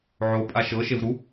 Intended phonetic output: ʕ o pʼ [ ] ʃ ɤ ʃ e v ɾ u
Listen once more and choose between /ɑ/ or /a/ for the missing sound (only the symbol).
a